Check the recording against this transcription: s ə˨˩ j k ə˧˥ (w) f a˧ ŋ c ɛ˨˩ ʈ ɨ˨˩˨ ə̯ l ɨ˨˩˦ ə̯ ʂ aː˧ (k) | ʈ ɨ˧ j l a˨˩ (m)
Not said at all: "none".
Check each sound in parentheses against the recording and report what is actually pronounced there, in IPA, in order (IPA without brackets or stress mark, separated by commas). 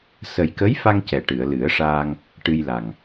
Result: j, ŋ, ŋ